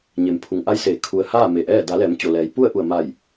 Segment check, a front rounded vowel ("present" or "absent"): absent